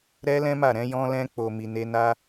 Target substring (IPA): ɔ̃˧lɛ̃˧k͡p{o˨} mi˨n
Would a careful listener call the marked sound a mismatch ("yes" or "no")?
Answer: no